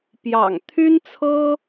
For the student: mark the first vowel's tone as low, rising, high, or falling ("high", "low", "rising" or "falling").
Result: low